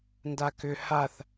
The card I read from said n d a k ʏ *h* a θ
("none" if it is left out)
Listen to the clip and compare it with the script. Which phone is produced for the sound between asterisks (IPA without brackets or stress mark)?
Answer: h